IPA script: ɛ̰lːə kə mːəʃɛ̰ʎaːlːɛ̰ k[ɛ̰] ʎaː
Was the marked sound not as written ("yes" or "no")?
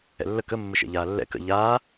yes